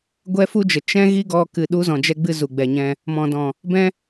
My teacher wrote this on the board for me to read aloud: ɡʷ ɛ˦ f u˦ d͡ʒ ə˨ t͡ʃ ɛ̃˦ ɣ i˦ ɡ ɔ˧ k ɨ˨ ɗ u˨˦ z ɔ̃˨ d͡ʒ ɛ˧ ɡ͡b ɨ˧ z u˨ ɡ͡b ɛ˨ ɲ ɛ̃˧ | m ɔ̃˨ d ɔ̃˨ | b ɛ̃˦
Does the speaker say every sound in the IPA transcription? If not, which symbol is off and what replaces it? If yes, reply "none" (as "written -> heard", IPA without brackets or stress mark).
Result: none